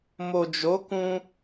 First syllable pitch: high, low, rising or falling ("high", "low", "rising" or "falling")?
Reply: low